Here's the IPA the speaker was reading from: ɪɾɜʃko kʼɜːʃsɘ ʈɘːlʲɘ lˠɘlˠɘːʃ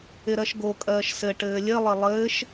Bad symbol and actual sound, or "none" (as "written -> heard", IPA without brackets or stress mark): k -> ɡ